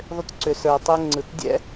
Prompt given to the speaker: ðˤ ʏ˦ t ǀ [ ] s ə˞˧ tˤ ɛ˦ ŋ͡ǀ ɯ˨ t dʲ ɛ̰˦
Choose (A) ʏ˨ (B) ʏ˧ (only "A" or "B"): B